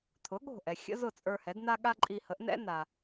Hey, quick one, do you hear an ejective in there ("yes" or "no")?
yes